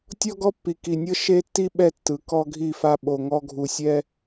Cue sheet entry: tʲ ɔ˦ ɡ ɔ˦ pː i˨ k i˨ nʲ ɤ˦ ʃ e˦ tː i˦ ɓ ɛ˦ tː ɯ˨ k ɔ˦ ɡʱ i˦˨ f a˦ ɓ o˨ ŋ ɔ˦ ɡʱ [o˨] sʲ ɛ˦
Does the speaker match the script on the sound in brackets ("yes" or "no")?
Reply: no